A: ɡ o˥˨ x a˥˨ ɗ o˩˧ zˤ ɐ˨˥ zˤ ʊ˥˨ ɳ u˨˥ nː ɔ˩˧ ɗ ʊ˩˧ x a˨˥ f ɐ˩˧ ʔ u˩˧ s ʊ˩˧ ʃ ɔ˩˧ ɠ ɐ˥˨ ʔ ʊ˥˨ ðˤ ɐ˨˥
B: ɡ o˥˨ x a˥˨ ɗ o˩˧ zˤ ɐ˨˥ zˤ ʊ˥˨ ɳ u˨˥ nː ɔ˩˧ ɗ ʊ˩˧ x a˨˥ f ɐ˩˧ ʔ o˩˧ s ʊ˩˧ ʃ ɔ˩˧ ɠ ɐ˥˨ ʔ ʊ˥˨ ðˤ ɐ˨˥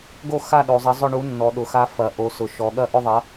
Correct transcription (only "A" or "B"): B